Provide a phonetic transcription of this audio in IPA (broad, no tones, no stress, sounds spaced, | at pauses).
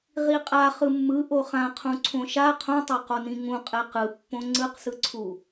ʁ i qʼ a χ ɯ mː ɯ ʔ o χ ã qʰ ũ ǀʰ õ ʃ a qʰ õ tˤ a q o n ĩ ŋ ũ qʼ ɛ q ɯ pː õ ŋ͡ǀ ɯ q s ɯ ǀʰ u